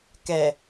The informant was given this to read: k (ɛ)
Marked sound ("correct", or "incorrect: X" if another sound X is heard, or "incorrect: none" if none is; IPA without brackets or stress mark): correct